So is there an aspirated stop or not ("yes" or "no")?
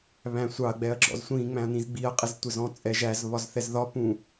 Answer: no